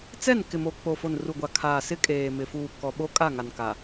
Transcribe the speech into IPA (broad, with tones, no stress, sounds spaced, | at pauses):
t͡s ɛ˦˨ n k ɪ˨ m o˨ k͡p o˨ f o˨ n r u˨ ɡʷ a˨ kʰ aː˨ s ɪ˦ kʼ eː˨ m ɪ˨ f uː˨ k ɔ˨ ɓ o˦ kʼ a˦˨ ŋ a˨ n k a˨